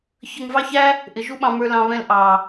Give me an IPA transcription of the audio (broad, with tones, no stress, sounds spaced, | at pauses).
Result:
ç ə˧ ŋ v ɑ˦ ç æ˦ | ʔ ɪ˨˦ ʒ u˦ ɓ ɑ̃˧ m ə˞˦ l ɑ̃˧ β ɛ̃˦ l ʔ ɑ˨